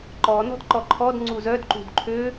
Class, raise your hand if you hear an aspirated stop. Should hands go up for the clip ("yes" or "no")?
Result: yes